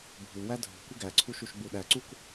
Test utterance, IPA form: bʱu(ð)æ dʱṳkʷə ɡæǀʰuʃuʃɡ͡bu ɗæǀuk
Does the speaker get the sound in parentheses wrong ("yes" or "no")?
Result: yes